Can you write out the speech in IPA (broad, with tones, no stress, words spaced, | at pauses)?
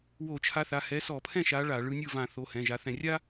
wo˧˩˧t͡ʃʰa˨˦θa˩˧˩ hɛ˨˦sɔ˧˩˧pʰɛ̃˥˩ʃa˨˦ ɭa˧˩˧ ɭɯ˨˦nʲɯ˥˩ vã˧˩˧ θo˩˧˩hɛ̃˩˧˩ ʒa˨˦ θɛ̃˧˩˧rʲa˥